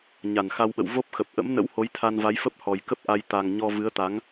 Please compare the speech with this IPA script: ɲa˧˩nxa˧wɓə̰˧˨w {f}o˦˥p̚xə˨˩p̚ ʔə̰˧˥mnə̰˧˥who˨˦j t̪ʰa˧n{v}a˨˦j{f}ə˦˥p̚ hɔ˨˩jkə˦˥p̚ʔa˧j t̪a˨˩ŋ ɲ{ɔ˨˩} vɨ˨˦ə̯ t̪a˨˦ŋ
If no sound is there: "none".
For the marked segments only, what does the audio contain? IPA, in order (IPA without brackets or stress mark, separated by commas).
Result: v, v, f, ɔ˧